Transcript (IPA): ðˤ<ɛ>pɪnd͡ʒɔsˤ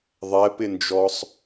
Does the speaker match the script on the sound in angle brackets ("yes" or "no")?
yes